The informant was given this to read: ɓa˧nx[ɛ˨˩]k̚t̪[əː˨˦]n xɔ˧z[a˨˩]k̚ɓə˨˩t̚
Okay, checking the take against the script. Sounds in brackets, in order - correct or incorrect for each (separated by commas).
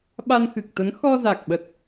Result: incorrect, incorrect, correct